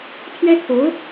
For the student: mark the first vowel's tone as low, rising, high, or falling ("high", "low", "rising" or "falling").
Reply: high